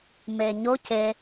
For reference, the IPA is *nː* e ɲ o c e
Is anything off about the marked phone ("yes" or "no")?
yes